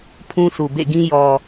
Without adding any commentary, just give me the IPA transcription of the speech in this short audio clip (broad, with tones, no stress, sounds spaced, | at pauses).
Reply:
pʰ ũ˦ sʰ u˨ b ḛ˦˨ ɡ ĩ˦ j ɔ˨